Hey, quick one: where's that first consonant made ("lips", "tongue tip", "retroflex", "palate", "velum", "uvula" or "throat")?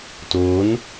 tongue tip